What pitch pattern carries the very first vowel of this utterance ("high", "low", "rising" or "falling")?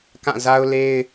falling